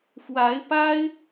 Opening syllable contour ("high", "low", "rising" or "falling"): rising